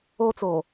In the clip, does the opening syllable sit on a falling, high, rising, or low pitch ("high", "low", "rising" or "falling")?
high